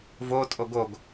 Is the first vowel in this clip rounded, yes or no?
yes